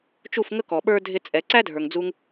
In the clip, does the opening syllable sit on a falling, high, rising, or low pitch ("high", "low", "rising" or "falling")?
falling